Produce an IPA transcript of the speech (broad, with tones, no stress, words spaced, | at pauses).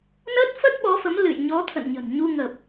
nə˦˥t̚fə˦˥t̚ɓɔ˨˦fə˨˦m lɨ̰˧˨jɲɔ˨˦ t̪ʰə̰˧˨nɲə̤˨˩nɲu˧ ŋə˨˩p̚